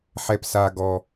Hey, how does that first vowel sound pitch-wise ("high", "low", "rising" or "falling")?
high